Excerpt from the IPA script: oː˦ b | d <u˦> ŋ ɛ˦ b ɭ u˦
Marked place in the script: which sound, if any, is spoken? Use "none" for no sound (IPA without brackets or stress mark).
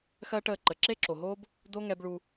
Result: o˦